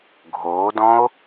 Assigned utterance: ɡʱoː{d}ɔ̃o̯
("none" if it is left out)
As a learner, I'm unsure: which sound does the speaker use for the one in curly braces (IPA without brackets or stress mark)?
d